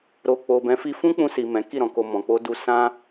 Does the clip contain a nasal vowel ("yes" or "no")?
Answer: yes